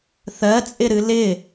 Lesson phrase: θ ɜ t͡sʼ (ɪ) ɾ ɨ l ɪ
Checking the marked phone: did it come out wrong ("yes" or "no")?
no